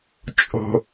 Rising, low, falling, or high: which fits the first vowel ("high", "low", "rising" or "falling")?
low